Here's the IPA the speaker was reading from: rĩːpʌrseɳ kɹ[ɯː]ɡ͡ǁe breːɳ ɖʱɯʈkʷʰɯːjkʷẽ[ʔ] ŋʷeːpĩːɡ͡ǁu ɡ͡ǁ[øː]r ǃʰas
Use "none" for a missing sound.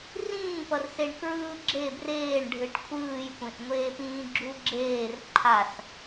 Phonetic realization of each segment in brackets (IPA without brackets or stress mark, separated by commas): ɯː, ʔ, eː